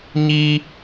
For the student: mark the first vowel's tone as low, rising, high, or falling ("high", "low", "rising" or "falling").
high